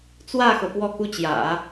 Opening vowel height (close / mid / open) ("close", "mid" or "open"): open